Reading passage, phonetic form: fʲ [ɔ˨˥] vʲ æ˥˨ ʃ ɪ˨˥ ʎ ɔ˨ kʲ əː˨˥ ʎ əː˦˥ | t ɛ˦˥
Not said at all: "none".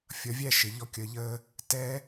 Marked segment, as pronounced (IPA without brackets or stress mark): ʌ˨˥